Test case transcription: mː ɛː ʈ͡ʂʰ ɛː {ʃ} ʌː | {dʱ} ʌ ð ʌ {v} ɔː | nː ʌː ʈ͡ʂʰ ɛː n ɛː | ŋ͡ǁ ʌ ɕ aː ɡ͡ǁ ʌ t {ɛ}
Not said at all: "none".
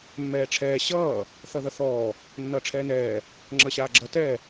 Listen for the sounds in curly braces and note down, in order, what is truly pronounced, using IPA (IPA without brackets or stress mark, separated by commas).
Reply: ɕ, θ, θ, ɛ